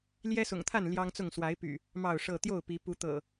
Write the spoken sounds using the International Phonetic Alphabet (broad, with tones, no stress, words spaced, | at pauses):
ljɛ˦sʊ̰˨˩ŋt̪ʰa˥˨n ljɑ˦ŋt͡sʊ˥˨ŋ swa˨˦ɪ̯py̰˨˩ | mɑ˥˨ʊ̯ʂɤ˥˨ t̪jo˥˨ʊ̯pi˨˦ pu˨˦t̪ɤ̰˨˩